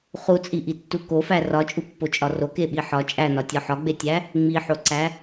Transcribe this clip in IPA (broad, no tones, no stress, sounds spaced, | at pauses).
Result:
χ u t͡sʼ i ʔ i tː u k o f æ r ɒ t͡ʃʼ u pː o t͡ʃʼ ɒ r o k e ɓ i ħ ɒ t͡ʃʼ æ n ɒ tʲ ɒ ħ ɒ ɡ͡b e tʲ æ | ŋ͡m i ħ o ǀ æ